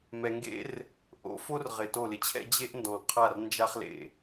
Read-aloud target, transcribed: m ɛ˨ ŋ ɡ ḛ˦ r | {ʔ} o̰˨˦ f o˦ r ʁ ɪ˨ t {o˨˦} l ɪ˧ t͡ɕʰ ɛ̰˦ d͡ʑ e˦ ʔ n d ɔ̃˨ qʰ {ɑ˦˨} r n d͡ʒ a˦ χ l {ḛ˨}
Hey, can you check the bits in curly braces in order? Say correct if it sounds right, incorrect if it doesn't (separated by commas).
correct, incorrect, incorrect, correct